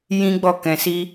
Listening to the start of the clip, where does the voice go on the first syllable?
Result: high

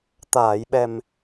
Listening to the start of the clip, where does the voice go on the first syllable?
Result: low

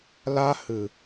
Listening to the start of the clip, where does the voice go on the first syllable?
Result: high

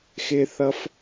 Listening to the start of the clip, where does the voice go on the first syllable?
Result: high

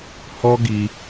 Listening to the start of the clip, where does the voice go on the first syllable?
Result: high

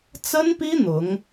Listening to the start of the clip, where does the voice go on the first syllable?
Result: high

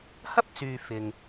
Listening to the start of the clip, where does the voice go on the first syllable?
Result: high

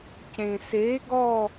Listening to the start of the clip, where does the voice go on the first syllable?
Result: low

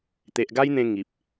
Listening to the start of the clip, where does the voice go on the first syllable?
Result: low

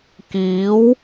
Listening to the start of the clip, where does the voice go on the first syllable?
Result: rising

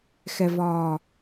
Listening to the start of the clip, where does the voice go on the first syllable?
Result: low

